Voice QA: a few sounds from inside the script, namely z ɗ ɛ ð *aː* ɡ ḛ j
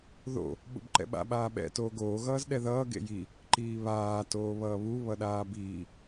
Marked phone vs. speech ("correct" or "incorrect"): incorrect